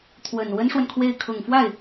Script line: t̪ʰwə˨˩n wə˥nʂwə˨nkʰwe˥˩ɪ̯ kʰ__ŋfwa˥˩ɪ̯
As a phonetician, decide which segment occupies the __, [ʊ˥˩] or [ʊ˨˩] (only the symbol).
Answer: ʊ˨˩